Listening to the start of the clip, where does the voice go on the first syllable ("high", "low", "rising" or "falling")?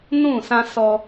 falling